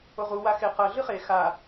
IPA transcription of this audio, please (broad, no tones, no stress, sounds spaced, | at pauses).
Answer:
o ʁ u w a x e q ɐ ɮ ɨ χ e x a